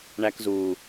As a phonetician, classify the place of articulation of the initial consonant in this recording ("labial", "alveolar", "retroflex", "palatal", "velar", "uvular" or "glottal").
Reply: retroflex